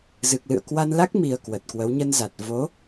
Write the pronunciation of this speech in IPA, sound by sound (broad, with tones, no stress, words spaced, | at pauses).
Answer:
zɨ˨˩k̚lɨ̰˧˨ə̯ kwa˧nla˦˥k̚ mi˨˩ə̯ kwə˨˩t̚kwə˨˦w ɲə˧nza˨˩t̚ vo˨˦